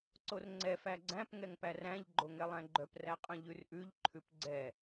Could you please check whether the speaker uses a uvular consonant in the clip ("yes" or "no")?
yes